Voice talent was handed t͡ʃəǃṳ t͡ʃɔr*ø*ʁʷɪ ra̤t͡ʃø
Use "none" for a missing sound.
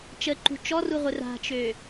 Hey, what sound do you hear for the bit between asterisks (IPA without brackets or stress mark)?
u